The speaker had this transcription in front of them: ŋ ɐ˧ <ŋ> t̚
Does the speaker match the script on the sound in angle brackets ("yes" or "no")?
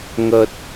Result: no